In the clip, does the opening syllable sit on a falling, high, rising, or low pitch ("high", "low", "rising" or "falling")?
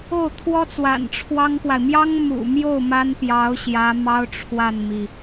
falling